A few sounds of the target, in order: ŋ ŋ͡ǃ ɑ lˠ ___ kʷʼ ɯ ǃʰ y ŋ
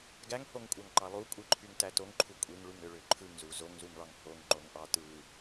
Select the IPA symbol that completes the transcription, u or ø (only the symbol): u